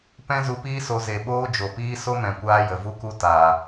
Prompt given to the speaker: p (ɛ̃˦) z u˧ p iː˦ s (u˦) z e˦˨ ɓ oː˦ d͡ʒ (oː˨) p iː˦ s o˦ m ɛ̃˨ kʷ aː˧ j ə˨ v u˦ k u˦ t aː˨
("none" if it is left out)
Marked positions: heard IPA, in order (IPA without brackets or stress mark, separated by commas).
ɛ̃˦, o˦, o˨